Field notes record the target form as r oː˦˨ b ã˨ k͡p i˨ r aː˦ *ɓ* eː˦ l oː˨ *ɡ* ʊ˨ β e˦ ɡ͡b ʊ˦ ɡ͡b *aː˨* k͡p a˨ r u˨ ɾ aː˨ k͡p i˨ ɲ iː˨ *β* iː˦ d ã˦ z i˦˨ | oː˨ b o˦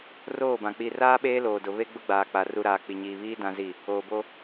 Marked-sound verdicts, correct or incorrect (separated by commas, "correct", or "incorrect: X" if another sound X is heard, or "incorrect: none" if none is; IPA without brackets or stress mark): correct, incorrect: d, correct, correct